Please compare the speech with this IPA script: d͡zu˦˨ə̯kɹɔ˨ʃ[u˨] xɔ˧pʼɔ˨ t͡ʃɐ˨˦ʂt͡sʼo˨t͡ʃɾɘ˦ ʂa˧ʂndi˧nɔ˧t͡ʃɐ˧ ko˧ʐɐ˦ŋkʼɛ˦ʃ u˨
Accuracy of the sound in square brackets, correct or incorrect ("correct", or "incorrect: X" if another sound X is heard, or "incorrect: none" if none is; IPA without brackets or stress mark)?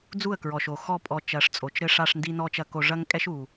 incorrect: o˨